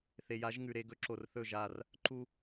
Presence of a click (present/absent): present